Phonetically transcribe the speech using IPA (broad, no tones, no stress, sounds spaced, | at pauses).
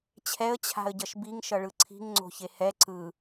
t͡ɕʰ ɛ ə̯ t͡ɕʰ a̤ ə̯ ɟ ʌ ʃ b i ŋ ʃ ʌ ɭ ɯ ǀʰ i̤ ŋ ŋ͡ǀ o̤ ç e h ɛ ǀ ɯ